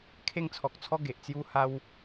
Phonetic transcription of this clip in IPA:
kʰe˥˧ŋt͡sʰɔ˨k̚t͡sʰɔ˦ ɡe˨ʔt͡sju˦ha˦w

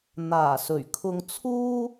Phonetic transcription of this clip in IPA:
n̪aː˨˩sɵ˨˩ɥ kʰʊ˧ŋt͡sʰuː˥

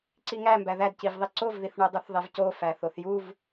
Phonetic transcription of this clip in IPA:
ǀiŋæmbæ ðædcivðˤi ǀovðiθɳo dˤuθðˤevco fæθoθjuv

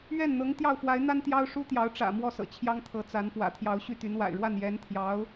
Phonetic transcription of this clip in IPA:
ɥɛ˥˩nn̪ɤ˧˥ŋ t̪jɑ˥˩ʊ̯fwa˧˥ɪ̯n̪a˥n t̪jɑ˥ʊ̯ʂu˥t̪jɑ˧˥ʊ̯ ʈ͡ʂä̰˨˩ mwɔ˥˩sɤ̰˨˩ t͡ɕʰjɑ˥ŋt̪ʰɤ˧˥t͡sa˧˥n pwä̰˨˩t̪ʰjɑ˧˥ʊ̯ ɕy˥˩t̪y˧˥n wa̰˨˩ɪ̯ɻwa˥˩n jɛ˧˥nt̪ʰjɑ˧˥ʊ̯

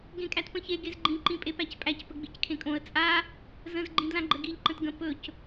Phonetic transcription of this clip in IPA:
ɡẽkʼætpə̃çe ɡezɡ͡ǃĩ ǃĩpʼepæcpʼæc pəɡ͡bickʰẽkʼõə̯ t͡sʼa | zə̃z ɡ͡ǃĩdlãɡ͡ǃəɡiʎ ǃə̃tɡə̃ pɵc

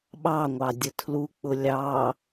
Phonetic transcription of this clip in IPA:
ɓɑŋʷɑ dʲətʰluk͡pʊ lʲɑ

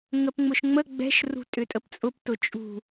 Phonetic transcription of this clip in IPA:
ŋəpŋ͡mʊʃŋ͡mə ɡ͡bɛ̤ʃ rṳtʼʏtʼəpt͡sʼʊp tʊt͡ʃʼṳ

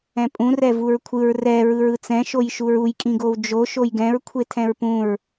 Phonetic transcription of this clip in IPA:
ɛ̃pʼũ rɛvuɹkʷʰɯɹ rɛ ɹɯɹɯt͡sɛ̃ ʃojʃuɹuj kʼĩɡowd͡ʒo ʃojɡɛ̃ɹ kʷʰetʰɛ̃ɹpũɹ

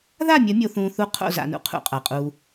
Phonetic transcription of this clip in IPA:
ða˦˨mʲɐ˨˦mʲo˨θũː˨ θu˦ qʰo̰˦˨za̰˨nṵ˨ qʰṵ˦qʼa˨qʼuː˦

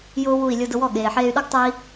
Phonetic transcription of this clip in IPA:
jʊː˥wu˥˩i̯ lʲo˧dʊ˧wɔ˥˩ ɠeː˩ħeː˧y̯ɗo˥ɡ tˤʊː˥i̯

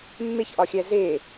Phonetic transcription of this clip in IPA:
mːeçʔɒxʲæ ze

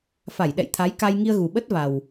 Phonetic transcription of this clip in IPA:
fa˧˩jɗɛ̰˧˨jt̪ʰa˨˦j ka˧j ŋi˧ə̯ɣu˨˩ɓə˦˥t̚ va˨˩w

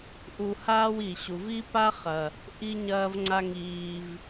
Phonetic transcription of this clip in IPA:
ʔu˧haː˦w i˨ɕu˨v i˦pa˦χɐ˨ | ʔi˦ɲɐː˦vŋ͡ǀa˦ŋiː˧v

